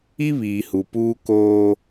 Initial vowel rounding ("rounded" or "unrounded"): unrounded